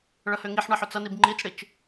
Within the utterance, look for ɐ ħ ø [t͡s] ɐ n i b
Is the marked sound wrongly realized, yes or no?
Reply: no